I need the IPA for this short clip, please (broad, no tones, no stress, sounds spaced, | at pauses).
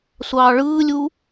sʷ ɑː ɭ ɯː lʲ u